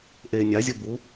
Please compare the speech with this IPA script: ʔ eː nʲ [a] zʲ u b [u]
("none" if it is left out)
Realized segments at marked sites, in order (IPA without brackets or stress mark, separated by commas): a, u